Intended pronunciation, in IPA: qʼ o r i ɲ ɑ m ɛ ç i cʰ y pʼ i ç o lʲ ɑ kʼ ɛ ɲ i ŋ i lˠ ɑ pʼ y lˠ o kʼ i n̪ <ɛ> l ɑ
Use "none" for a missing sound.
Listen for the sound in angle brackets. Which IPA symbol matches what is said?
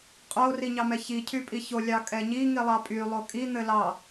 ɘ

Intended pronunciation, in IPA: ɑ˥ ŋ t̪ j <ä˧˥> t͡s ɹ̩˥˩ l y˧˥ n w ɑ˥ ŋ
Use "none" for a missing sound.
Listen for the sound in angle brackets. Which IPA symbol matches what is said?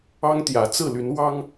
ä˧˥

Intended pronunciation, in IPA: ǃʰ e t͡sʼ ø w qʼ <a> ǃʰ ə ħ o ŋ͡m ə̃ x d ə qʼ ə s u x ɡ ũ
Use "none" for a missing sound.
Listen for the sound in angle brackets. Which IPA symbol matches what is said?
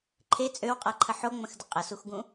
a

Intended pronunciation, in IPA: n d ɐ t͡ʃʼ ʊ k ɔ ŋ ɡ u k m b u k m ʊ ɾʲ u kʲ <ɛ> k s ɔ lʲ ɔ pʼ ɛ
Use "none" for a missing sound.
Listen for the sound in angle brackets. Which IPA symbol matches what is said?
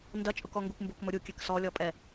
ɛ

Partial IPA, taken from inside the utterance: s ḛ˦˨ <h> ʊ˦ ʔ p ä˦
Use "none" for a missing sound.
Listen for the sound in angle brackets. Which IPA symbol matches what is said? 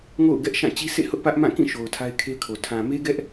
h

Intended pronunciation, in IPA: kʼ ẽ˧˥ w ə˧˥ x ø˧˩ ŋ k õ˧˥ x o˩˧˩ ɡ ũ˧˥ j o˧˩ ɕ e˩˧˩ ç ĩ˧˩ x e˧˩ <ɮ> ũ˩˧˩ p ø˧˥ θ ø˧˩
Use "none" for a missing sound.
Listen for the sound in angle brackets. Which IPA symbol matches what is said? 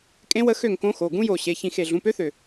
ɮ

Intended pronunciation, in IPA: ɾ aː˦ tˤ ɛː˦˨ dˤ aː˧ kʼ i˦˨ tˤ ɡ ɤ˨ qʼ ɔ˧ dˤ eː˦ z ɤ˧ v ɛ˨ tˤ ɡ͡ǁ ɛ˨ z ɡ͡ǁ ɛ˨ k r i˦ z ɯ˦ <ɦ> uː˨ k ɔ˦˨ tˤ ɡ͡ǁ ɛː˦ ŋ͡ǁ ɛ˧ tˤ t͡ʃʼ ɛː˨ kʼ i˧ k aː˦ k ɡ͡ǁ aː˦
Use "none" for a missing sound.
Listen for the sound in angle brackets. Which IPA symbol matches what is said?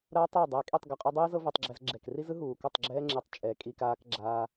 ɦ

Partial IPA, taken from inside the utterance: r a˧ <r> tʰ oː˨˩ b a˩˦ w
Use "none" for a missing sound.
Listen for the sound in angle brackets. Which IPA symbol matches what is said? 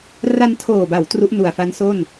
n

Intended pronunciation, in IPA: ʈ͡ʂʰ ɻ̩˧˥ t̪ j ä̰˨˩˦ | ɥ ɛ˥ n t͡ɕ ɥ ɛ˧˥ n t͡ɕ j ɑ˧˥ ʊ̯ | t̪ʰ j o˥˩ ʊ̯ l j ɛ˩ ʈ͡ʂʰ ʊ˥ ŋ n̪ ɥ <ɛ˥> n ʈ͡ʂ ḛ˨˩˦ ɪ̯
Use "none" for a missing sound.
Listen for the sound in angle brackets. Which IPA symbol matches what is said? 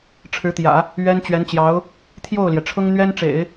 ɛ˥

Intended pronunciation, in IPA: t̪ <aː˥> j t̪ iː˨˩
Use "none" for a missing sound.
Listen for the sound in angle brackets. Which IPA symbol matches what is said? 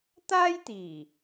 aː˥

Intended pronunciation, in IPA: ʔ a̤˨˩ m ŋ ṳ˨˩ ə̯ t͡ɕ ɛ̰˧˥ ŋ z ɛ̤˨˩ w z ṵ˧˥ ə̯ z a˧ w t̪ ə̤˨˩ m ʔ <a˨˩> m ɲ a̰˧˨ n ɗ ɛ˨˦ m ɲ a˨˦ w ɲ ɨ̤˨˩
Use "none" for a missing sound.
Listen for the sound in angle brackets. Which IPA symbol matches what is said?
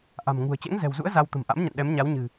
a̰˧˥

